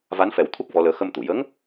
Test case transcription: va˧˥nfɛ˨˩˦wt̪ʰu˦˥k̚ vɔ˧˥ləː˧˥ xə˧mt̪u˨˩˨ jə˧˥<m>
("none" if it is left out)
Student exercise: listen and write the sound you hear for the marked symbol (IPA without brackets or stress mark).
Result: ŋ